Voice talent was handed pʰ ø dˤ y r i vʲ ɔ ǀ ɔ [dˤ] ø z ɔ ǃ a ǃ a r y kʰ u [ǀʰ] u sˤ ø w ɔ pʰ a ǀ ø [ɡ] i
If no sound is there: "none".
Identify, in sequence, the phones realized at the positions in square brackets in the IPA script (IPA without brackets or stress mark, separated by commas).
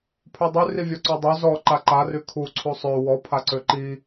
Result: dˤ, ǀʰ, ǃ